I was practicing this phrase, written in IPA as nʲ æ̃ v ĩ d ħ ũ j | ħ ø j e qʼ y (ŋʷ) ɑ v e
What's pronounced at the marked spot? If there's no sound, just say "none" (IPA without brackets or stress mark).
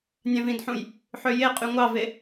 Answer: ŋʷ